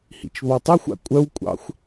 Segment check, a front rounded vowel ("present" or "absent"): present